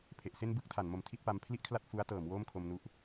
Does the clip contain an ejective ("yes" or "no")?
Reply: no